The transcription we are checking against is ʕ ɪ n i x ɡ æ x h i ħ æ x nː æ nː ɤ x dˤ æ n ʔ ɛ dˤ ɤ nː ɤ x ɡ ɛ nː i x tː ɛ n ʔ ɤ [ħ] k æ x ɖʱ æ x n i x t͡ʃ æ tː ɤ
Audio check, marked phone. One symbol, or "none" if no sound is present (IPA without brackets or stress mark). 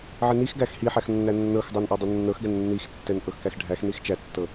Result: x